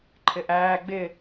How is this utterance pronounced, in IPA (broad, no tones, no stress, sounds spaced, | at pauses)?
ǃʰ ɪ ʔ æː ɡ͡b ɪ